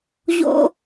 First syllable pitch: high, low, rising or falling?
high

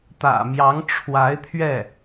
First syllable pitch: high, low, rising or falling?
low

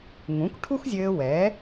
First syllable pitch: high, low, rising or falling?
rising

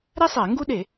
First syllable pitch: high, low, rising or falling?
high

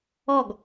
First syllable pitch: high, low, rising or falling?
falling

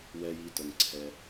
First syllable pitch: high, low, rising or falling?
high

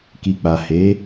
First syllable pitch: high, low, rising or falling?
low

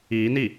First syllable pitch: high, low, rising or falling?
rising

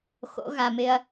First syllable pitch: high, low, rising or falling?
rising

